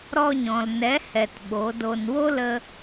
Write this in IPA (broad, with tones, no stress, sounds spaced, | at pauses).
ɾ ɔ˧ ɲ ɔ̃˨ l n ɛ˨˦ h ɛ˨ t ɓ o˨˦ d o˧ n w o˦ l ə˧